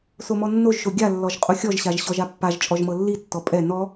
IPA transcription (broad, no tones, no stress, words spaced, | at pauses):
somɔnːoʒʃo ɡʲalːɔʒ qʼuxʲɔʒɕaʒ ɕɔʒapːaʒt͡ʃʼɔʒ mɤlːitːɔ pʼɛ nɔ